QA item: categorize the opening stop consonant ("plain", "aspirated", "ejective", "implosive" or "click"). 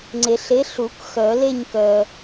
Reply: click